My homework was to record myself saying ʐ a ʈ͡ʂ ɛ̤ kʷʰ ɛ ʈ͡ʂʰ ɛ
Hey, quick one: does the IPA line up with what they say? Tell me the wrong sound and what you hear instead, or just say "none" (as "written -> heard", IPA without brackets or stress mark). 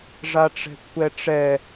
ʈ͡ʂʰ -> ʈ͡ʂ